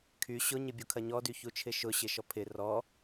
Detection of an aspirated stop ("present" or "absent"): present